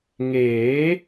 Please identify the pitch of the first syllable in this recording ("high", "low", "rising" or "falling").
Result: rising